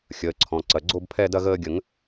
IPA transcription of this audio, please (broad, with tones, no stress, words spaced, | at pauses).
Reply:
xʲəː˩˧˩ǀʰɔ̃˩˧˩ǀɐ˩˧˩ ɡ͡ǀo˥˧bpʰɛ˥˧ dɐ˥˧ ɣəː˧ɡʲə˨˩˦ŋ